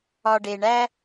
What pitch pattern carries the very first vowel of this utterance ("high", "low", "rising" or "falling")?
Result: low